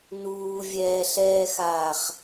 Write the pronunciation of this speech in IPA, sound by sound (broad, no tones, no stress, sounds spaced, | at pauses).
n uː vʲ ɛː ɬ ɛː x aː χ